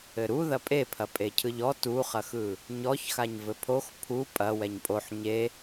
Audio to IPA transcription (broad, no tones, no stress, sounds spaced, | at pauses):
ɘ ɾ u ð ɐ pʼ e pʰ ɐ pʼ e cʰ ɯ ʎ ɔ t u χ ɐ x ɯ | ɲ ɔ ç x a ɲ v ɘ pʰ o x pʰ u pʼ ɐ w ɛ ɲ pʼ o ħ ɲ e